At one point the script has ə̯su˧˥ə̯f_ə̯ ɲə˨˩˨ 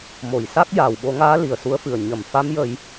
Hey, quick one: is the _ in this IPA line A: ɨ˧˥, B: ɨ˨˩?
B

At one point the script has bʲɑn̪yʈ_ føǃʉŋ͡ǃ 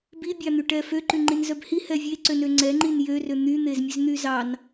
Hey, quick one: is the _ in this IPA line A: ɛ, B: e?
A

